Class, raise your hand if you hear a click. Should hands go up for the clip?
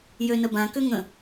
no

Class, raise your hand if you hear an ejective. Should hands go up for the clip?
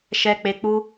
no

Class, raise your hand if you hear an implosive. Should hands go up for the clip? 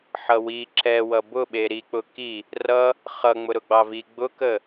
yes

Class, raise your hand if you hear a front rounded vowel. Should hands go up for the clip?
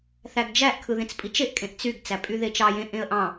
yes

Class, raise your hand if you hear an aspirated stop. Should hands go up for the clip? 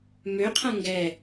yes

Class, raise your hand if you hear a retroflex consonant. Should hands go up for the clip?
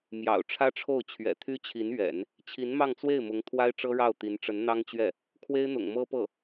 yes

